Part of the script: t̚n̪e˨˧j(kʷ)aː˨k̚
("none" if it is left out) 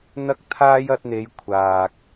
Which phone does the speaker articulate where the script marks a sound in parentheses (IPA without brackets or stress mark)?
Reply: kʷʰ